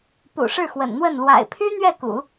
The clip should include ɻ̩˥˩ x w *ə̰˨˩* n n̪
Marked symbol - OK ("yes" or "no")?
yes